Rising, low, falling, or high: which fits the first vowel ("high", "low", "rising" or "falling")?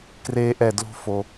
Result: high